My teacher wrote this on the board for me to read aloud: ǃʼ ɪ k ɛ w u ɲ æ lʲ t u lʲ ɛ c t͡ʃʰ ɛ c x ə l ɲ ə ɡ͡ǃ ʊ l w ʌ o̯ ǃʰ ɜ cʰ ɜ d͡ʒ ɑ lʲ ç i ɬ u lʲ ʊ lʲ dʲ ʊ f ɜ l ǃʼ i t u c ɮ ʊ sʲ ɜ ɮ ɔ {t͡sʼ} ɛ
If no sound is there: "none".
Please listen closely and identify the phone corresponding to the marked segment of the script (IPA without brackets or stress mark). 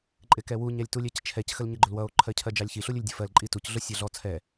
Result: t͡sʰ